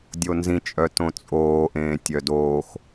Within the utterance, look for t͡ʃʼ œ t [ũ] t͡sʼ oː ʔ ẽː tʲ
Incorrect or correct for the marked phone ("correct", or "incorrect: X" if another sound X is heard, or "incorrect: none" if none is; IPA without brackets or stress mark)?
incorrect: õ